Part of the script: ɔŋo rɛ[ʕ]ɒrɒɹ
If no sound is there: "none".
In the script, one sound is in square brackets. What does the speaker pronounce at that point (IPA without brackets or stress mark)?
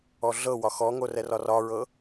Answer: r